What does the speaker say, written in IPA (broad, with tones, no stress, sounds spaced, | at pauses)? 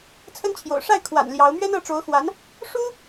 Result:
t͡sʰ ə˥ n t͡ɕʰ j o̰˨˩ ʊ̯ ʂ a˥˩ ɪ̯ kʰ w a̰˨˩ n l j ɑ˧˥ ʊ̯ m ɥ ɛ˥ n ɤ˧˥ ʈ͡ʂ o˧˥ ʊ̯ x w a˧˥ n | ʂ u˥